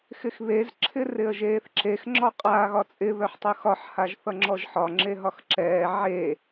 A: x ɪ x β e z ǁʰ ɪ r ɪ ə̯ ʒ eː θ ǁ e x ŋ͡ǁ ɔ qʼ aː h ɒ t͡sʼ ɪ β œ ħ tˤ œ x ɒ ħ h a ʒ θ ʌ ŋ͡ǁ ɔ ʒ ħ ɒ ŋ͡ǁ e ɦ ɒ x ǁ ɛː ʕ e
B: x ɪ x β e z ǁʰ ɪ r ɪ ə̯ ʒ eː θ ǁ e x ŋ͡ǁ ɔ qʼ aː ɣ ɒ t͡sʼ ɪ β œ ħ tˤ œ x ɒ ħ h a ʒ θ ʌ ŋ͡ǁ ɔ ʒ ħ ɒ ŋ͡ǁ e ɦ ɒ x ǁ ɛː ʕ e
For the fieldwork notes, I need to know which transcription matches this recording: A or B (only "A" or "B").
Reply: B